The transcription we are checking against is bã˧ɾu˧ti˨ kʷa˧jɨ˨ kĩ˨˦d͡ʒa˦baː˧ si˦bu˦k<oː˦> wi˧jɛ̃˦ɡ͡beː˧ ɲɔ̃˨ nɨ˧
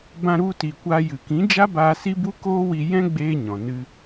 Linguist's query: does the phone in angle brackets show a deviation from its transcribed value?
no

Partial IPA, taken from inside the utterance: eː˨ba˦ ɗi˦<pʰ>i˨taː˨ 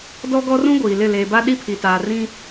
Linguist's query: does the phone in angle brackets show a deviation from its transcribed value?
no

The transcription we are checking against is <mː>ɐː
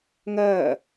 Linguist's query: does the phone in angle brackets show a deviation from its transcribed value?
yes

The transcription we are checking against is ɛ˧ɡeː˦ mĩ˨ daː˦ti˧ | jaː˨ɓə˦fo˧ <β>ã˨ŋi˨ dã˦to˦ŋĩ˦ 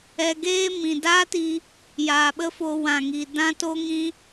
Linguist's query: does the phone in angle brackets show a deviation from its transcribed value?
yes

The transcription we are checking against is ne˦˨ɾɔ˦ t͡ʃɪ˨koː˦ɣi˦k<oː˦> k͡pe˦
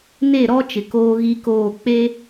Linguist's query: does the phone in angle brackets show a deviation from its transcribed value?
yes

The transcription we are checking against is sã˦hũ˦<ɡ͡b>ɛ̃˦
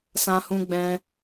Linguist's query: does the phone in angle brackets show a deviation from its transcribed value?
no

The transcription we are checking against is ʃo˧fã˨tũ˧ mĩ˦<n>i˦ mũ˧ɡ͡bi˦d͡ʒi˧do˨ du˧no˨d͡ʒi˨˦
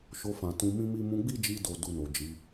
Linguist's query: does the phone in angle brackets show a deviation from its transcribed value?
yes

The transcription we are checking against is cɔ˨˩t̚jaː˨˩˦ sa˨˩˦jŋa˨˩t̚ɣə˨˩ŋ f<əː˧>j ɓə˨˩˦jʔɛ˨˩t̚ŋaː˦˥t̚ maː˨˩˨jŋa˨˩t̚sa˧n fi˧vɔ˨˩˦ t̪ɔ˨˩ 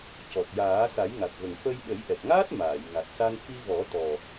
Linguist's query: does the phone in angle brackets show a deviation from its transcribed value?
yes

